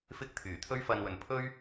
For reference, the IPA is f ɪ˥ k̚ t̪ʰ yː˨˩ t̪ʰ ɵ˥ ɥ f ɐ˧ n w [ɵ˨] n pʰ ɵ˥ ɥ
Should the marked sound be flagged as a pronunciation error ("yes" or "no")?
no